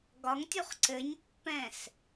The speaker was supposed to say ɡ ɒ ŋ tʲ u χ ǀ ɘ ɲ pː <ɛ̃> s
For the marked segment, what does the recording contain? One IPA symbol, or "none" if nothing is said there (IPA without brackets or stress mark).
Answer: ɛ̃